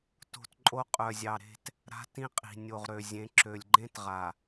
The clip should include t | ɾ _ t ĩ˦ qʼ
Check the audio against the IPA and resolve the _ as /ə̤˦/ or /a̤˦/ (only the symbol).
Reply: a̤˦